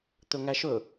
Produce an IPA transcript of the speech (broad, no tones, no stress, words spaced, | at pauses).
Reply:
t̪ɵŋæʃɵ